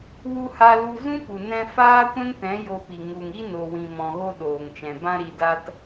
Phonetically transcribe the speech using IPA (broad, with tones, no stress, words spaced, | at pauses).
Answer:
wu˦ ha˧lu˧ zũ˦pu˨nɛ̃˧ faː˦kʷɛ̃˦ŋtɛ̃˨˦ jo˧pi˨ ŋu˨ŋ i˦no˨wĩ˨ mɔ̃˨ɣo˧ ɗoː˨ŋt͡ʃɛ̃˨ bã˧ɾi˨da˧t